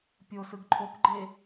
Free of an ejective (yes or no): yes